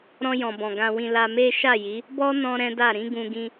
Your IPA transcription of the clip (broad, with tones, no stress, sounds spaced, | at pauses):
ɾ ɔ̃˧ j ɔ̃˨ b ɔ̃˨ ɡ ã˧ w ĩ˧ l a˧ m e˦ ʃ a˦˨ j i˨˦ | b ɔ˦ n ɔ̃˧ ɾ ɛ̃˦ d a˦˨ ɾ ĩ˨˦ ɡ ũ˧ ɡ ĩ˧